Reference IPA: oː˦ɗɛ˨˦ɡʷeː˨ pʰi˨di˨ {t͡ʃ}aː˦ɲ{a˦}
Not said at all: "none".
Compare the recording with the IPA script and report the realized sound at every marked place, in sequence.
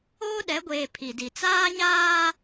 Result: t͡s, aː˦

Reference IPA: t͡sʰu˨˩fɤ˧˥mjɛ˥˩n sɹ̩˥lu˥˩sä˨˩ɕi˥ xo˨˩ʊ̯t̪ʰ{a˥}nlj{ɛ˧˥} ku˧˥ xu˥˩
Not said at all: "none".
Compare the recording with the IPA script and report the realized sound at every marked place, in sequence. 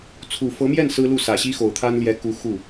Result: a˥, ɛ˧˥

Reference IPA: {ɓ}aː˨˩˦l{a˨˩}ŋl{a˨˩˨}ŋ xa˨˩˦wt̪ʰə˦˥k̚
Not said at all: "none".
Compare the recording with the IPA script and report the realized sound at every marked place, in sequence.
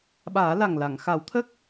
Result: ɓ, a˨˩, a˨˩˨

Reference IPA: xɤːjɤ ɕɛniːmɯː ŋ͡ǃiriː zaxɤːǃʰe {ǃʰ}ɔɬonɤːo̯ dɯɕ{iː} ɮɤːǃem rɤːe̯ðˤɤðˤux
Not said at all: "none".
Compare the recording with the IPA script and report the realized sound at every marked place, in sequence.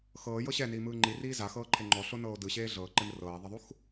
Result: ŋ͡ǃ, eː

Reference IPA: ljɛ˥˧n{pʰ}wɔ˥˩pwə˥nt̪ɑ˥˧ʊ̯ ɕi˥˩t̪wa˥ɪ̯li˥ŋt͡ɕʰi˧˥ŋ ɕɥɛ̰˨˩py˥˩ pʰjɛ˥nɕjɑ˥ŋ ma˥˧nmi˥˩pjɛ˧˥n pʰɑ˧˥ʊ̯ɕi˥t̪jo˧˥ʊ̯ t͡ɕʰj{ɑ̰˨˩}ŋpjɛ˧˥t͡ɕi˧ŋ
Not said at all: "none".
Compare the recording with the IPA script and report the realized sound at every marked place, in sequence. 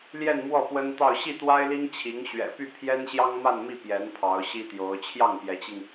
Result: m, ɑ˥˩

